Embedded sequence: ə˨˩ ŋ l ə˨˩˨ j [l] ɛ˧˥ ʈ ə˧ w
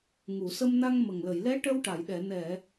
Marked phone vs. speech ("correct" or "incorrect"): correct